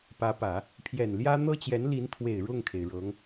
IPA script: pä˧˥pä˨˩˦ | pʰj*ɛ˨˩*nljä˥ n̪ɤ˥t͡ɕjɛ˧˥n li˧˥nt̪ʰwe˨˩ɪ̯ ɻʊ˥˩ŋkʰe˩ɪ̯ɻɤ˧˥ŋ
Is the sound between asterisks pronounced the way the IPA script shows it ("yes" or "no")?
yes